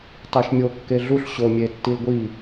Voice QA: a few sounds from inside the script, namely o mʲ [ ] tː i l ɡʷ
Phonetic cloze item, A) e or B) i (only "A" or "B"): A